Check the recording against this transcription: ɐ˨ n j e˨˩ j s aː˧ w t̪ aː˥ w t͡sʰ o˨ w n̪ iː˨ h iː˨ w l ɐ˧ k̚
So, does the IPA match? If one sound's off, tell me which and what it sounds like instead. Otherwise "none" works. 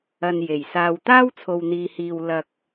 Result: none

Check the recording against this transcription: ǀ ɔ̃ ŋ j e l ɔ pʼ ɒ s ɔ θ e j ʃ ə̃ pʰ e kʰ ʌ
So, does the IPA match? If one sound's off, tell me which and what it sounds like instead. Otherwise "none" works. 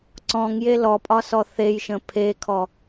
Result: ʌ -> ɔ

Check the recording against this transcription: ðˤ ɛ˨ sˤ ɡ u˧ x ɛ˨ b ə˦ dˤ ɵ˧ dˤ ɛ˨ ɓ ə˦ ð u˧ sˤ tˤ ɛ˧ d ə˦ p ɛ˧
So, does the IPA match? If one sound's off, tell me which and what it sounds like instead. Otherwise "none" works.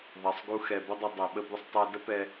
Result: ð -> b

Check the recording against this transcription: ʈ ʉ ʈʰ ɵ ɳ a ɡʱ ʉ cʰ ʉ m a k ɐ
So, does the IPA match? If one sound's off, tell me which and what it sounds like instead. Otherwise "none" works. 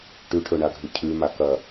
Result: none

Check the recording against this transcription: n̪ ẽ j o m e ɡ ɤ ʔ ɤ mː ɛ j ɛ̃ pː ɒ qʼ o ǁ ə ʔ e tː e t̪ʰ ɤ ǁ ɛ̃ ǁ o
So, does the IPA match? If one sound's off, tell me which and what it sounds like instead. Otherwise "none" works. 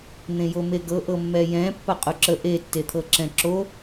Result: none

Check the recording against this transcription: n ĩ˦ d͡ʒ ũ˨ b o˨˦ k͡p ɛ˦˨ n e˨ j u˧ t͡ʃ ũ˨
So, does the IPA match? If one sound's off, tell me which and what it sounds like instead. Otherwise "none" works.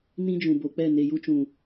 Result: none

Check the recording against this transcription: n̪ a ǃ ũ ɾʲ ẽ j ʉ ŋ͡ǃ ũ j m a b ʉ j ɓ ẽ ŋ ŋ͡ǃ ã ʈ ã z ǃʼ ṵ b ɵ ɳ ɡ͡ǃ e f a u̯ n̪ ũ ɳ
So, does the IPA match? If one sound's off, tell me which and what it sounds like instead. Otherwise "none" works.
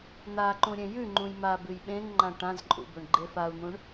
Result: none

